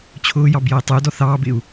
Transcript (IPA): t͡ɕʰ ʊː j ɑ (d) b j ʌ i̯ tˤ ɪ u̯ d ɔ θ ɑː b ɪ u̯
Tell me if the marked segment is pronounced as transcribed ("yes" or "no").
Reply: no